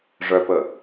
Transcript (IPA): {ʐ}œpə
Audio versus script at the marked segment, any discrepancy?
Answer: no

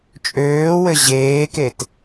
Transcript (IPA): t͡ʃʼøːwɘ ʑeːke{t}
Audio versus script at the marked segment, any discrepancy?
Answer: no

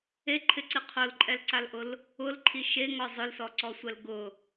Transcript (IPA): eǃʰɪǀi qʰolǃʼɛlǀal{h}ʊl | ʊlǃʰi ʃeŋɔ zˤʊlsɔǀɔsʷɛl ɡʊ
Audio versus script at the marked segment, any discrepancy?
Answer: yes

